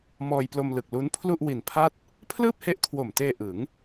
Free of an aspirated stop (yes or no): no